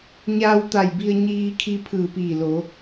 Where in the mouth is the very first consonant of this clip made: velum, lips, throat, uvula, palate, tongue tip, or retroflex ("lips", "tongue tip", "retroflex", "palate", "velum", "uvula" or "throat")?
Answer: palate